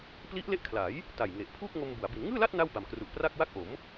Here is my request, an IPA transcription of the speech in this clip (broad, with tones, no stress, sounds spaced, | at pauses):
p l i˦˥ ʔ l e˦˥ ʔ kʰ l a˩˦ j | t a˨˩ j ŋ e˨˩ ʔ pʰ uː˥˩ k̚ ŋ o˧ m b u˩˦ a̯ b i˩˦ n ŋ ɯː˥˩ l a˥˩ t̚ n a˥˩ w b a˨˩ m k r u˨˩ ʔ p r a˥˩ k̚ w a˥˩ k̚ ʔ o˩˦ m